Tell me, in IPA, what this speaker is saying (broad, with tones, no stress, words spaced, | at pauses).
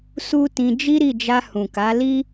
su˦tĩ˧ d͡ʒi˦ɾi˦˨d͡ʒa˧ hũ˨ka˨˦li˦